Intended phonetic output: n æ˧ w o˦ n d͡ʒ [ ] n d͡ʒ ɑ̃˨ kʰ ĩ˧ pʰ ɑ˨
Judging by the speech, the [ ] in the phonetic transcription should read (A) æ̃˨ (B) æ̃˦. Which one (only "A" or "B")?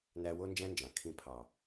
B